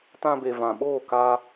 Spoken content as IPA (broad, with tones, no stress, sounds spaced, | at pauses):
t ã˧ b e˨ v ã˨ ɓ oː˦˨ k a˧